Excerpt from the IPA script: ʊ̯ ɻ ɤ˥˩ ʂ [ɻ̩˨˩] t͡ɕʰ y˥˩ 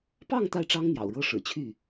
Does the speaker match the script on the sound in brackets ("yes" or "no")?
yes